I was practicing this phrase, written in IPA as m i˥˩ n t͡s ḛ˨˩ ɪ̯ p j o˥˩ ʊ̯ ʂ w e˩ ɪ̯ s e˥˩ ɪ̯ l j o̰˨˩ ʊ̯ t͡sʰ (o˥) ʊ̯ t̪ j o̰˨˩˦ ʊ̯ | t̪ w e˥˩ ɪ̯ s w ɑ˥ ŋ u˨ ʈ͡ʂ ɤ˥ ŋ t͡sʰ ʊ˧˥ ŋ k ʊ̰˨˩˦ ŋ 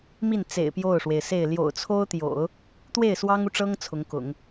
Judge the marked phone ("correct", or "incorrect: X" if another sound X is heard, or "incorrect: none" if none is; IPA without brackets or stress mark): correct